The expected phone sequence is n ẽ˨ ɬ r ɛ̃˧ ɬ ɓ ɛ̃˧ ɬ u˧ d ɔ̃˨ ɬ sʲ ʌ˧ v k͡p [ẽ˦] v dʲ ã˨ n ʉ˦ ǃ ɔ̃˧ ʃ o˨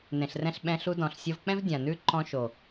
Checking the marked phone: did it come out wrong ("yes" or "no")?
yes